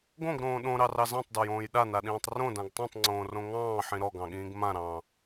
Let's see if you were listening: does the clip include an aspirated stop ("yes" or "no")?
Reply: no